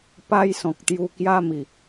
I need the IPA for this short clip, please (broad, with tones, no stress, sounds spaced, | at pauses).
p a˦ j s ɔ̃˨ k̚ t̪ j u˧ k j a˦ m i˨˩